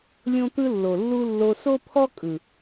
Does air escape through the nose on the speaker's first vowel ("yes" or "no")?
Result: yes